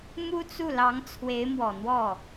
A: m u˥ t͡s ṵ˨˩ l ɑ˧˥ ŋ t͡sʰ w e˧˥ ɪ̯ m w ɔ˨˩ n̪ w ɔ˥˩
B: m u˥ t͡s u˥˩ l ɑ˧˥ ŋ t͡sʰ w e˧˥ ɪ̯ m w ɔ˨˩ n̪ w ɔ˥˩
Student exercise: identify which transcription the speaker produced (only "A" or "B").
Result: B